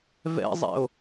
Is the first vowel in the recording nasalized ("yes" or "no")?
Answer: no